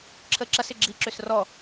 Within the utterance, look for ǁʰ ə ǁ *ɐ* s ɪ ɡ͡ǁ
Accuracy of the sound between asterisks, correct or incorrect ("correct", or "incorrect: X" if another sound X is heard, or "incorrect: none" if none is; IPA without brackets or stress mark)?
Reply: correct